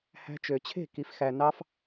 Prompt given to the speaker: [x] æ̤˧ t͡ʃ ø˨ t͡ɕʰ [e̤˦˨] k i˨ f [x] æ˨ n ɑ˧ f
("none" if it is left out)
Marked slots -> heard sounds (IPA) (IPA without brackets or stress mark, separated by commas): h, e̤˦˨, x